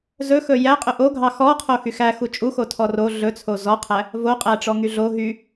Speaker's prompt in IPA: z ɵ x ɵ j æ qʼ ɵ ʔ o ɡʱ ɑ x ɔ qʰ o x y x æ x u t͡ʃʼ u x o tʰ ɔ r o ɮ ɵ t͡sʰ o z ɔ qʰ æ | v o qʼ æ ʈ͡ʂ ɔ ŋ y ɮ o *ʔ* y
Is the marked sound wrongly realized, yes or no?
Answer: yes